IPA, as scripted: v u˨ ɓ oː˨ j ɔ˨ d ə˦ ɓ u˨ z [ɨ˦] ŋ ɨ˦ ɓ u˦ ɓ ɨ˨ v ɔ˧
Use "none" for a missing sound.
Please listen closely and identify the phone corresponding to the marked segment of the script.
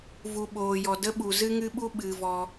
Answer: ɨ˦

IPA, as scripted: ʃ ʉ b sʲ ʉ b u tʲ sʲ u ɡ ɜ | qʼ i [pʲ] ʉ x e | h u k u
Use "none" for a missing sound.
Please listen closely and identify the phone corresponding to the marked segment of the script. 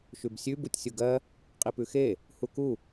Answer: p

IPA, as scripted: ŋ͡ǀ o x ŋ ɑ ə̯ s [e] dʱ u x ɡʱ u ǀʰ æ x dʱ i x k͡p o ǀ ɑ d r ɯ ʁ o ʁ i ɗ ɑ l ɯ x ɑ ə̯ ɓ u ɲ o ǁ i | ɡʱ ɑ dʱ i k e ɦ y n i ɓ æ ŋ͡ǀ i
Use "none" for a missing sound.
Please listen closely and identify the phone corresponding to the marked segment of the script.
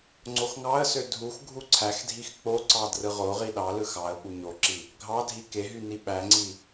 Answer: ø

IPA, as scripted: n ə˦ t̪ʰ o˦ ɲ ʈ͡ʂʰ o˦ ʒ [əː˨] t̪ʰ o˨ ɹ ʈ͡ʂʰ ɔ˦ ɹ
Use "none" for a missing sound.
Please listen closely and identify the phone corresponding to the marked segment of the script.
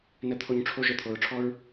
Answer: ə˨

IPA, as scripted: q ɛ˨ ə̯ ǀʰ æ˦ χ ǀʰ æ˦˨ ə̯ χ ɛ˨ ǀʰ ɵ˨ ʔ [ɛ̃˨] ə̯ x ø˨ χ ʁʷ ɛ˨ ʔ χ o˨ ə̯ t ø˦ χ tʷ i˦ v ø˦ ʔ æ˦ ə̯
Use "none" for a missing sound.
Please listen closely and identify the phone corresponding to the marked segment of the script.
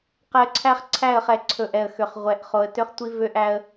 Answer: ɛ˨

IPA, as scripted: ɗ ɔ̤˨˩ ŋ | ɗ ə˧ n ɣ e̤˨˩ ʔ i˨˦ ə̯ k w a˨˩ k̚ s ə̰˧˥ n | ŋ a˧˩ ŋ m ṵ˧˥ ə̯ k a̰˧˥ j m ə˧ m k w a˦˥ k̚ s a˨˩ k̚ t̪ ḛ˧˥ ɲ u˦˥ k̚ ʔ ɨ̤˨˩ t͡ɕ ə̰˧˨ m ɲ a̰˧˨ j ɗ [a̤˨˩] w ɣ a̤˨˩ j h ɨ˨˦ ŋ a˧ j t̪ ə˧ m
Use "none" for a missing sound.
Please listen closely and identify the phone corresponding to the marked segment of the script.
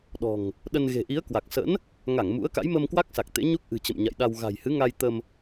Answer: a˧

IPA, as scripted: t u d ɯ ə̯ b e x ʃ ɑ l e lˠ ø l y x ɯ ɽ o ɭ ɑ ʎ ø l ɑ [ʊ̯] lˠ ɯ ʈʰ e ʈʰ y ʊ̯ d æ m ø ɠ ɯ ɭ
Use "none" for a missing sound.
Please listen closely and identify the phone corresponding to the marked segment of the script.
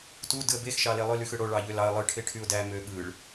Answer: ə̯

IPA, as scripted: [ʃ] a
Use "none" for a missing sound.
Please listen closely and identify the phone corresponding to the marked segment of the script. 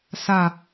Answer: s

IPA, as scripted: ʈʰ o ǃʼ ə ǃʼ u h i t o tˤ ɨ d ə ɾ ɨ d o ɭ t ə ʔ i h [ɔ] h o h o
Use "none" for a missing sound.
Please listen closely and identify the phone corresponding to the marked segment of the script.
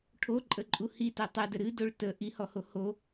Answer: ɔ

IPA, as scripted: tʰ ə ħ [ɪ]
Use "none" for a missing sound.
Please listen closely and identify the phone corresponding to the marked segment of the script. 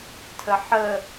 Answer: ə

